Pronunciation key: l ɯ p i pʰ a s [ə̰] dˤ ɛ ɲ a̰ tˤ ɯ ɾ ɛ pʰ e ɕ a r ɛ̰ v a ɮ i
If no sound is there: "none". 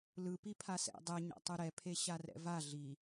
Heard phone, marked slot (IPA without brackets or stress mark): ɛ̰